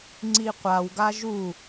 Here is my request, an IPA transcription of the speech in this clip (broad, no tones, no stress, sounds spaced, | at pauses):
ŋ͡ǀ i qʷ a w ɡ a ʒ u